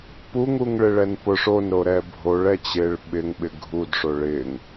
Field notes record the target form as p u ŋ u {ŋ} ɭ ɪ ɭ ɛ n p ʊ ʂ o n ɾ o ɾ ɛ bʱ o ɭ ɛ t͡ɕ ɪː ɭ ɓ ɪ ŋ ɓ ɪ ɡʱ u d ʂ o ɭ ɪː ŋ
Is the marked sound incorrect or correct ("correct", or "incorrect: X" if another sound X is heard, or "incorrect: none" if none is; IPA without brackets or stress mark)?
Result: correct